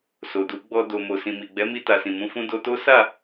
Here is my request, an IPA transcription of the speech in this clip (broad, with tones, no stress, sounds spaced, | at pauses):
s o˨ d u˨˦ ɡ͡b ɔ˧ d o˨ m o˨ s ĩ˨ m i˨ ɡ͡b ɛ˨˦ m i˧ t a˨ s ĩ˨ m ũ˨˦ f ũ˦ d o˧ t o˦ s a˦˨